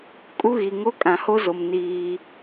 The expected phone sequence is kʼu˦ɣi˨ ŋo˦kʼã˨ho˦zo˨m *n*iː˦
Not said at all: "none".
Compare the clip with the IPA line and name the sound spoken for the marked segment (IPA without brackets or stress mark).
n